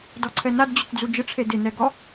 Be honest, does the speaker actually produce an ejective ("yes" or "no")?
no